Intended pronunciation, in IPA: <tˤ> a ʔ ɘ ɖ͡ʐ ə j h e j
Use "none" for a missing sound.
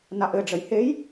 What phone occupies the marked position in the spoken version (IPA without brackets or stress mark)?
n